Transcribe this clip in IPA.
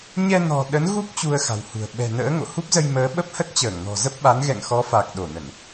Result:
ɲ ɛ˧ n ɔ̤˨˩ ɗ ə˨˦ n ɣ u˦˥ k̚ t͡ɕ u˧ ə̯ x a̤˨˩ w h ṳ˨˩ ə̯ ɓ ɛ̤˨˩ n ə̰ː˧˥ ŋ o̰˧˨ h u˦˥ p̚ z ə˧ j m əː˨˦ ɓ ə˦˥ p̚ h ə˦˥ t̚ t͡ɕ əː˧˩ ŋ n ɔ̤˨˩ z ə˦˥ p̚ ɓ a˨˦ n ɣ ɛ̰˧˨ ŋ x ɔ˨˦ f a˨˩ k̚ ɗ o˧˩ n ə˧˩˨ n

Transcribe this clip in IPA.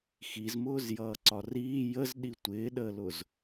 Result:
x i z m ʊː z j ʌː ǀ ɒ r iː j ə z ɗ i tʷ ɪː ɗ əː l ʊ z

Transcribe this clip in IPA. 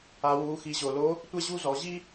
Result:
a˩˧ w u˩˧ x i˩˧ ʑ o˩ l o˧˥ | tʷ ɛ˥ ʑ u˥ z ɔ˩˧ ʑ i˥

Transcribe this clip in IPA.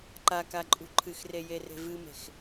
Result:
ǃ a k a ǃʼ ṳ ǃʰ ɨ x r e j e r e̤ v ɨ m e̤ x

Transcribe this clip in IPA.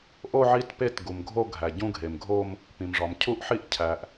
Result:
ʔ o˥˧ ʕ i˥˧ t p e˥˧ t ɡ u˩ m ɡʱ o˥˧ ɡʱ æ˩ ɟ ũ˥˧ ɡʱ e˩ m ɡʱ o˥˧ m | p ĩ˩ m ʐ ɒ˩ m cʰ u˥˧ ʔ ħ i˥˧ ʔ cʰ æ˩ ʔ

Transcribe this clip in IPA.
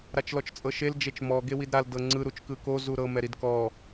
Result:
ɾ a t͡ʃ l ɔ t͡ʃ t͡sʼ ɤ ʃ e l d͡ʒ e t͡ʃ m ɔ ɡ e w i d ɾ a l d ɤ ŋ͡ǀ ɯ ɾ u t͡ʃ k ɯ k o z u ɾ ɤ m ɛ ɾ i d k ɔ

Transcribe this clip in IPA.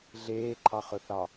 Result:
ɮ eː ǃʰ ɑ χ ɵ θ ɑ

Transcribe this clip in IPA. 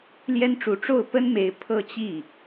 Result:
l j ɛ˥ n ʈ͡ʂ u˧˥ ʈ͡ʂ o˥˩ ʊ̯ p ə˥ n m e˧˥ ɪ̯ pʰ ɤ˥˧ t͡ɕ i˥˩

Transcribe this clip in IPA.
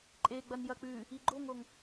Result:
ǃʼ e ɡ͡b ɐ n j ɐ k͡p ʉ | i ɡ͡ǃ o ŋ o ŋ

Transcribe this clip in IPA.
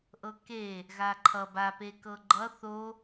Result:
ʔ ɤ k e | ɣ a ǃʰ ʌ b a p e k ɤ ɡ͡ǃ ʌ θ o

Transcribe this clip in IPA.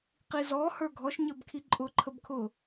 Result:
q i z ɔ h ə˞ ɡʱ ɔ ʃ ɲ ə˞ b kʰ i ǃʼ ʊ ǃʰ ə b kʰ ʊ

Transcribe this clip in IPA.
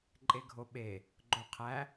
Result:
ǃʼ e ɡʱ o ɓ e | ɡ͡ǃ o qʰ æ

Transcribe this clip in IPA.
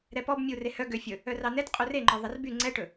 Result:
ɾ ɛ p ɔ b mʲ u r e h œ ɡ ø fʲ ɵ | œ r ɑ n ɛ t qʼ u r e ŋ͡ǃ ɔ ðˤ ɛ r b y ŋ͡ǀ ɛ ʈ ɵ

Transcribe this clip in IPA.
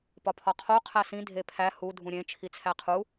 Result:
p ɒ pʰ ɒ qʰ o qʰ æ s ĩ dʱ e pʰ æ h u dʱ ũ ɾʲ ẽ t͡ʃʰ i t͡sʰ æ qʰ u

